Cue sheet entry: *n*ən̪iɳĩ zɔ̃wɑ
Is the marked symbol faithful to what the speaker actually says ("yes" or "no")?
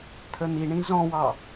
no